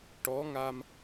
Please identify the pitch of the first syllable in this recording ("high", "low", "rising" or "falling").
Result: rising